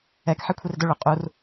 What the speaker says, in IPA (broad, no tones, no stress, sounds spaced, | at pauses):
ɛ k ħ i kʷʰ i r d ʊ ɭ ʊ qʼ u r